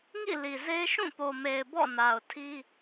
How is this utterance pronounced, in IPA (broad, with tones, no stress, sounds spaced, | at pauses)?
ŋ ḭ˦˨ l i˨ z e˦ ʃ ũ˦˨ p o˨ m e˨ ɪ̯ b ɔ̰˦˨ n a˨ ʊ̯ tʰ i˦